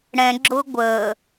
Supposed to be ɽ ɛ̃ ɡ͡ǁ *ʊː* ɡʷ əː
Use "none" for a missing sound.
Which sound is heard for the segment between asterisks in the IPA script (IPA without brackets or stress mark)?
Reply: ʊː